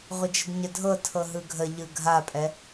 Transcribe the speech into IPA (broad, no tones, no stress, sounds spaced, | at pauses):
ʁʷ ɪ d͡ʒ ɘ d ɲ ə dʱ ɤ tʰ ɤ ɦ ɯ ɡʱ ə ʎ ɯ ɡʱ a pʼ ɛ